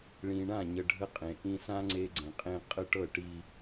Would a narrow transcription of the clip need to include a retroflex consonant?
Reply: yes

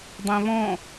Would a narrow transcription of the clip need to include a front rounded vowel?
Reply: no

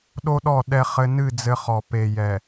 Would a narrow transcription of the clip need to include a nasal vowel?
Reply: no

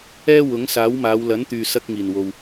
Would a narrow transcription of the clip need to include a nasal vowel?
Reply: no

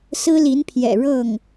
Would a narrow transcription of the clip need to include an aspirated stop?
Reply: yes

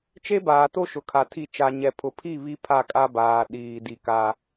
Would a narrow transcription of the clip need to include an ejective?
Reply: yes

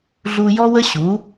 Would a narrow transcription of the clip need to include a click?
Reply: no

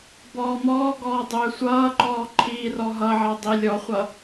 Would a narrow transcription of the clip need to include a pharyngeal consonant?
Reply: yes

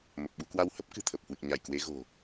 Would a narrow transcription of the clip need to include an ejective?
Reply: no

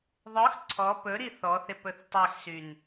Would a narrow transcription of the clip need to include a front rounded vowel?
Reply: yes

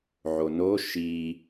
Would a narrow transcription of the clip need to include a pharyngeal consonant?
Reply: yes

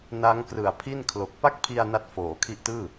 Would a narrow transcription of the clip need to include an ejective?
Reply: no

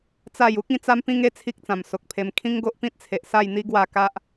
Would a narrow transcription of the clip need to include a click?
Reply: no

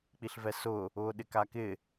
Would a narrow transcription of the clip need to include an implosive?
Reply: yes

